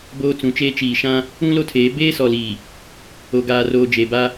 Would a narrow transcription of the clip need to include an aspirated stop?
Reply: yes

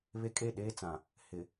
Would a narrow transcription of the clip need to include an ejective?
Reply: yes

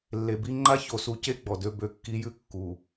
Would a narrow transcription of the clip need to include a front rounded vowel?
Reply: yes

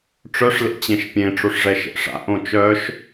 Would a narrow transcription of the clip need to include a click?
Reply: no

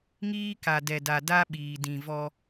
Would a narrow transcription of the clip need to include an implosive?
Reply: yes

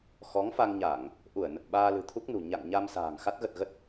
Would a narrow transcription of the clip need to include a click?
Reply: no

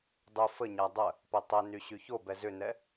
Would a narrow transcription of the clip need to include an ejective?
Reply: no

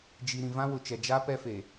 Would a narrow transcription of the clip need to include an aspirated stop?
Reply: no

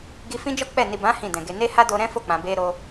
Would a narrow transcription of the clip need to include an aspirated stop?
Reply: no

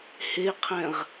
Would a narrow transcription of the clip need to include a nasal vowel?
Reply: yes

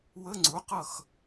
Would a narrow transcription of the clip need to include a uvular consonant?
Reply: yes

